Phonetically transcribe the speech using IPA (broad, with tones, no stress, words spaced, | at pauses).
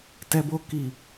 tɛ˦bo˦ ki˦˨